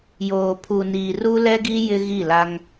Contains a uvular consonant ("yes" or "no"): no